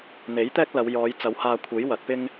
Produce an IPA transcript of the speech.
n̪ e˨˥ j t̪ ɛː˥ k̚ l ɐ˨˧ w j ɔː˨˧ j t͡s ɐ˨˧ w h aː˧ kʷʰ e˨˥ j w ɐ˨˥ t̚ p ɪ˥ ŋ

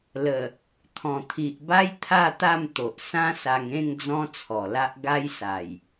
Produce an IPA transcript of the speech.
l ə˨˩ | t̪ʰ ɔ̃˨˩ t̪ʰ i˨ ʔ b a˦ j t̪ʰ a˥˧ t̪ a˥˧ m t̪ o˨ ʔ s ã˦ s a˧ ŋ ẽ˥˧ ŋ d͡z ɔ̃˦ t͡sʰ ɔ˨˩ l a˦ ʔ ɡ a˦ j s a˨˩ j

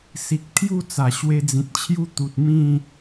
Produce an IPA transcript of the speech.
s i˨ k̚ t̪ʰ j u˥˧ t͡s a˨˩ ɕ w e˧ d͡z ĩ˨ t̚ t͡ɕʰ j u˦ t̪ u˨ t̚ m ĩ˥˧

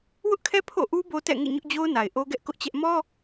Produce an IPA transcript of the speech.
w ʊ˦ ʔ kʰ ɛ˦ pʰ o̰˦˨ ʔ u˦ b o˦ t ɛ̰˦˨ ŋ ḛ˦˨ ɲ ʊ˦ ʔ d͡ʑ o˦ ʊ̯ n a˨ ɪ̯ ʔ o˦ ɡ ɛ˦ ʔ k ʊ˦ ʔ t͡ɕ ɛ˦ ʔ m ɔ˦

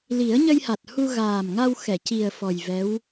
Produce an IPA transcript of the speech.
l i˨˩˦ ə̯ ɲ ə˧ j h a˨˩ t̚ h u˧ ɣ aː˨˩ m ŋ a˧ w x ɛ˨˩˨ c i˨˩ ə̯ f ɔ˨˩ j v ɛ˧˥ w

